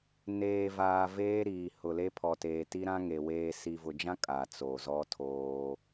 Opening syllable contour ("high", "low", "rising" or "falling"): low